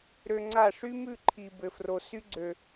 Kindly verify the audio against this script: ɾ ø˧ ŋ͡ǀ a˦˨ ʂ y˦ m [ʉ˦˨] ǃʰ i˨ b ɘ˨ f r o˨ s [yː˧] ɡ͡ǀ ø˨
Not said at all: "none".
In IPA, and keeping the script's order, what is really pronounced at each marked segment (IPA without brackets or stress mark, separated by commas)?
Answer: ʉ˦˨, y˧